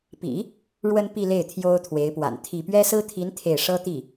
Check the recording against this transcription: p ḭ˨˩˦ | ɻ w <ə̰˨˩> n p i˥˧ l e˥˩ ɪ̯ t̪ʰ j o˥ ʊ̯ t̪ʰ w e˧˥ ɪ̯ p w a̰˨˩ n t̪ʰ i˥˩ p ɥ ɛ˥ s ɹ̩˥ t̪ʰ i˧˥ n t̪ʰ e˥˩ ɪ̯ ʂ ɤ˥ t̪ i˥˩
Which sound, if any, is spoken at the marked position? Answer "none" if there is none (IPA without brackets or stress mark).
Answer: ə˥